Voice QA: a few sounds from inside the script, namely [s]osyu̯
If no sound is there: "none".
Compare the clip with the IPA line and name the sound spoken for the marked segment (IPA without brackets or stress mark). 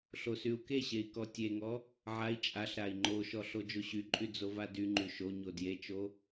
ɬ